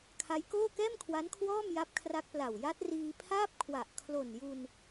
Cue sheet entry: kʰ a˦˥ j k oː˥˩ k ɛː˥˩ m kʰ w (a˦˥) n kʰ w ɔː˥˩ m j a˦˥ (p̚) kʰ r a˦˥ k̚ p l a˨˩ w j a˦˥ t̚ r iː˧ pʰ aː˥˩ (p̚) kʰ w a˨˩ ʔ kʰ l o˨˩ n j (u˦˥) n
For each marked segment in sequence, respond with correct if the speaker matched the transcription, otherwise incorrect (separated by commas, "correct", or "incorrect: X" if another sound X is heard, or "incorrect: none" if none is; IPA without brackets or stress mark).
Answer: correct, correct, correct, incorrect: u˧